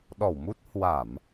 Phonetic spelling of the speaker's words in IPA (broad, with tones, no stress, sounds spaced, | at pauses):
ɗ ɔ˧˩ w m u˦˥ t̚ h w a˧˩˨ m